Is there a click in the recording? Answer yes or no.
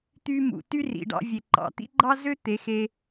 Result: yes